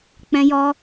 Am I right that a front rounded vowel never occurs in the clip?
yes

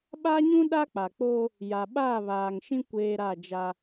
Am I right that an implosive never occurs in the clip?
no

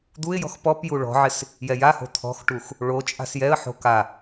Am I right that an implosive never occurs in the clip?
yes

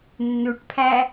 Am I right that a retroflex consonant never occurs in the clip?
no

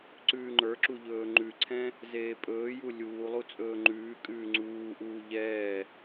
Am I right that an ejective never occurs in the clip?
no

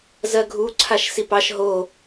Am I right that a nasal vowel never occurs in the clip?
yes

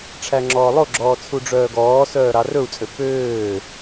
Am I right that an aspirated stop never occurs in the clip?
no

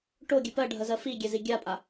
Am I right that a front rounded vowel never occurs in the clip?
yes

